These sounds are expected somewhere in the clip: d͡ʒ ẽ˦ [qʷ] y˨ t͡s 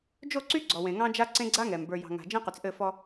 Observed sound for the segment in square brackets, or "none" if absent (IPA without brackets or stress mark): q